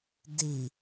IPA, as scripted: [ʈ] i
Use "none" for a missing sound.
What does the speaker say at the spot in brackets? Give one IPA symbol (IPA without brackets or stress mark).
d